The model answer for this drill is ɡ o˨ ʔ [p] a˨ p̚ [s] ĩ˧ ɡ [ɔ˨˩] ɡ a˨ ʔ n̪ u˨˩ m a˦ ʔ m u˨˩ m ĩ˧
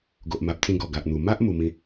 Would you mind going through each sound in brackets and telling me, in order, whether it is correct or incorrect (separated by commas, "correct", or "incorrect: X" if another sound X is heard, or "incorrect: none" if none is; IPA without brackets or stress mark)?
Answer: incorrect: m, incorrect: t͡s, correct